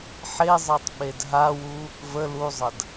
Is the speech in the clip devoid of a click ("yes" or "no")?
yes